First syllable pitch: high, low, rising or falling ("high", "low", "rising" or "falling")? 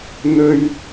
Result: high